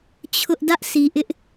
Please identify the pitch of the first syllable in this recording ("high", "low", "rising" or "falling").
high